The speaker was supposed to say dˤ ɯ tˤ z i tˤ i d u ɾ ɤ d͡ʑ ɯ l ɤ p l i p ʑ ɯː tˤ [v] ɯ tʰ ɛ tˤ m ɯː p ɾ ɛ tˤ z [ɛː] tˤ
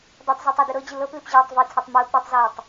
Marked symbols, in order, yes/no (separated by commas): yes, yes